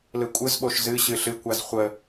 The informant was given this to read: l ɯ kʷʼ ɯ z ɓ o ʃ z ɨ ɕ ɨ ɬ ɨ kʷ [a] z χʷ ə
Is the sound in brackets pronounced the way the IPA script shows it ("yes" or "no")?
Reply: yes